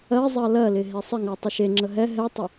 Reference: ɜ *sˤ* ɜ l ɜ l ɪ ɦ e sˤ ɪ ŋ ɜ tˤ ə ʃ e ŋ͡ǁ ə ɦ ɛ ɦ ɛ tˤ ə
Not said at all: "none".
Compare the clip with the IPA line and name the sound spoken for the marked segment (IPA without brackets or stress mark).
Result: zˤ